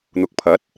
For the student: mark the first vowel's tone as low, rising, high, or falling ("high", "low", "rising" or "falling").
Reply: rising